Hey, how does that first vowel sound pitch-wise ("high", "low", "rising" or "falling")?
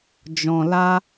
low